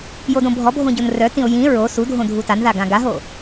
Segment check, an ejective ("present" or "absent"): absent